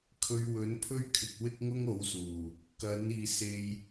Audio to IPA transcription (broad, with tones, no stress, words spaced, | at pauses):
kʰɵ˨˧ɥwɵ˨˥npʰɵ˥ɥkʰɪ˨k̚ wɪ˥k̚ŋʊ˥ŋo˨˥wsuː˨˩ | kɐ˨˥n iː˨se˧j